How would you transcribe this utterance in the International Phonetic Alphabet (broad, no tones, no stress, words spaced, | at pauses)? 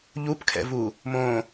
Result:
ʎupkʰɛ̰vu | mõ